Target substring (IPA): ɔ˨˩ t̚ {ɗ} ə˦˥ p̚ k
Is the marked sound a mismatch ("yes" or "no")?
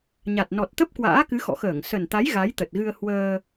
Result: yes